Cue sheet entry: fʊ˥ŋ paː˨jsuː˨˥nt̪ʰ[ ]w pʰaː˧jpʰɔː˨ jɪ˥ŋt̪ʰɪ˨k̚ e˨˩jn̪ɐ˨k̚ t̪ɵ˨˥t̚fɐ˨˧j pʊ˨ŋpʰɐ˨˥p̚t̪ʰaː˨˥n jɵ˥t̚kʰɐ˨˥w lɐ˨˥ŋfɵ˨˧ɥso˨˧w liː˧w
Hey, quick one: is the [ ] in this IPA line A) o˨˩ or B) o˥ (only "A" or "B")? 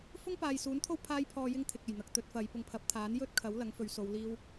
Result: B